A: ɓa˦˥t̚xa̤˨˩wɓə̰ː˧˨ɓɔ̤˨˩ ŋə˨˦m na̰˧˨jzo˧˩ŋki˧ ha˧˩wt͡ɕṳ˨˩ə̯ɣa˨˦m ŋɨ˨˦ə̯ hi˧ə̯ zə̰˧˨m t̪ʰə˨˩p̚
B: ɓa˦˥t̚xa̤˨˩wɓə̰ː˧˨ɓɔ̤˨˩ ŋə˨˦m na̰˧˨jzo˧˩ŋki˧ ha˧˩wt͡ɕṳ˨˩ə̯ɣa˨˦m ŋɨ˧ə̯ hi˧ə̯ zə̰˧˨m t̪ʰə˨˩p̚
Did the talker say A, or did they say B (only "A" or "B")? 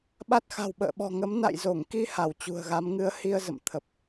A